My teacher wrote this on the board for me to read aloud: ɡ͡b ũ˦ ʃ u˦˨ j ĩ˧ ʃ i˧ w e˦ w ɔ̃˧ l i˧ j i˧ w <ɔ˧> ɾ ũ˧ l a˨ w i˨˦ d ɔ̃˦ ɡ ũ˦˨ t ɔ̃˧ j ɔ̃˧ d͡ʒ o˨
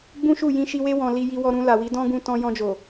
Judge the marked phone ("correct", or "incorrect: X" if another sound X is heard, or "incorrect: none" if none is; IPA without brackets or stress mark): correct